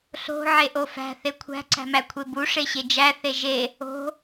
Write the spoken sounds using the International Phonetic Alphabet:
ɬ o̤ ʕ e ʔ o f æ̤ θ e kʷʰ æ̤ ǀ æ̤ m æ kʷʰ e b u ʂ e ɕ e d͡ʒ æ θ e ʒ e | o̤

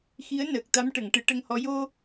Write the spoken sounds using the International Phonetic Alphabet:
x i˧˥ ə̯ n əː˨˩ k̚ t̪ a˧˥ m ʈ ə˨˩˨ ŋ ʈ ɨ˨˩˦ ʈ ə˧ ŋ h ɔ˧˥ j o˧

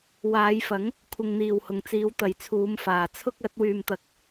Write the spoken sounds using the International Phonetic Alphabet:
w aː˨˧ j f ɐ˨˥ ŋ | kʷʰ ɪ˨ ŋ n̪ iː˨˩ w h ʊ˨˩ ŋ t͡s iː˨˧ w t̪ ɐ˨˥ j t͡sʰ uː˨˧ m f aː˨˩ t͡sʰ ʊ˥ k̚ ɐ˨˥ t̚ w yː˨ m t̪ ɐ˨ k̚

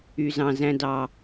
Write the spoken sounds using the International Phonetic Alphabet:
y˧ z ɑ̃˧ z æ̃˦ d ɑ˧

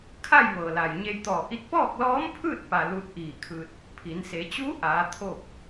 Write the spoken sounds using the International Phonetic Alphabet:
kʰ a˥˨ j ʋ ɤː˩ l a˩ j ɲ e˧ j t̪ ɔː˧˩ ʔ i˧˥ t̚ p ɔː˥˨ k̚ l ɔː˧˥ m pʰ ɯː˥˨ t̚ p a˩ l u˧ t̚ ʔ iː˧˩ kʰ ɯː˧ t̚ | pʰ i˩˧ n s e˩˧ t͡ɕ uː˧˥ ʔ aː˩˧ t̪ʰ oː˥˨ k̚

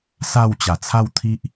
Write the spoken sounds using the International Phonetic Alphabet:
s a˥˧ w t͡ɕ a˨˩ t͡sʰ a˥˧ w t̪ʰ i˦ ʔ

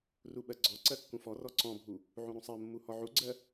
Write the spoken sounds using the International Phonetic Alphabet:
r u ɓ ɜ ɡ͡ǀ ɔ ǀ ɜ kː ũ f ɔ r ɔ ǀ ɔ̃ bʱ u | ʕ ũ ɾ ũ sˤ ɜ mː u h ɔ ʕ u ɡ͡ǀ ɜ

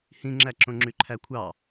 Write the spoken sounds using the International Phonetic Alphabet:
h ĩ ŋ͡ǁ æ ǁ õ ŋ͡ǁ y ǃʰ æ kʷʰ ɑ

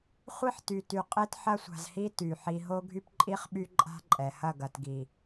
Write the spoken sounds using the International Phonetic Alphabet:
χʷ i˦ ħ t y˨ t y˨ qʼ e˦ t ħ ɐ˦ sʷ a̤˨ z h i˦ t y˨ ħ i˨ ɦ o˦ ɡʱ y˦ p ǃʼ i˦ χ ɓ y˦ ǃʼ a̤˦ ǃʼ ɛ˨ h ɐ˦˨ ɡ ɐ˨ t ɡ i˨

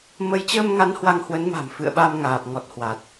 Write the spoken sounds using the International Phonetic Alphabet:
m ə˨˦ j t͡ɕ əː˧ m ŋ a˨˦ n h w a˧ ŋ h w ə˨˦ n m a̤˨˩ m f ɨ̰˧˨ ə̯ ɓ a˧ m ŋ aː˨˩ p̚ ŋ ɔ˨˩ t̚ h w a˨˩ t̚

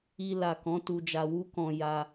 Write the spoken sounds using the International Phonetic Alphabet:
i˧ l a˨ k ɔ̃˨˦ t u˧ d͡ʒ a˧ w u˦ k ɔ̃˧ j a˧

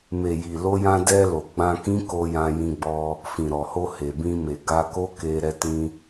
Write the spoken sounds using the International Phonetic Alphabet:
m e˨ j i˨ l o˧ j ã˧ d ɛ˧ l o˨ ɡ͡b ã˧ k ĩ˦ k o˧ j ã˧ j ĩ˧ ɡ͡b ɔ˧ | f ĩ˨ ɾ ɔ˨ h o˧ h e˨ b ĩ˧ m e˨ ɡ a˧ k o˦ k e˧ ɾ ɛ˧ t ĩ˧

